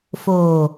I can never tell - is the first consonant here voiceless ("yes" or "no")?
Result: yes